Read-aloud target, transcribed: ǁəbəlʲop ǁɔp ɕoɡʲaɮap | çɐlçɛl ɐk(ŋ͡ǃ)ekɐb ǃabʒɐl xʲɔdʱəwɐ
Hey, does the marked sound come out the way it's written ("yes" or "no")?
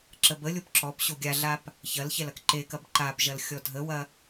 no